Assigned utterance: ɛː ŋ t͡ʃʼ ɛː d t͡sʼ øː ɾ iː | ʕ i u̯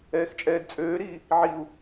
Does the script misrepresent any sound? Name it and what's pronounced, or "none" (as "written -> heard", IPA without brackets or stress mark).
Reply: ŋ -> x